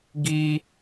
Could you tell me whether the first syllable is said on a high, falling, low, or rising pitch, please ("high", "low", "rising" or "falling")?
high